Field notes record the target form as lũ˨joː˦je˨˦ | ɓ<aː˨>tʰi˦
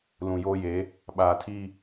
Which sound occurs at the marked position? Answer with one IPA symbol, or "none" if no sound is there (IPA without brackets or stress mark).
aː˨